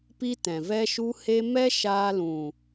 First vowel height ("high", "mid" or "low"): high